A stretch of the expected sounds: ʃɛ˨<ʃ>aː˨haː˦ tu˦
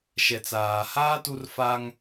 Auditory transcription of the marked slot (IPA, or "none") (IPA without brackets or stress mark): t͡s